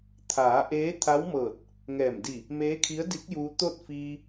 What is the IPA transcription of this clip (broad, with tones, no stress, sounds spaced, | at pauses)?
t̪ʰ aː˩˧ ʔ eː˧˥ t̪ʰ a˧˥ w m ɤː˧˩ t̚ | ŋ ɛː˧˩ m d i˧˩ | m eː˧˥ kʰ i˧˥ ə̯ d i˧˥ k̚ j uː˧ t̪ o˥˨ t̚ f iː˧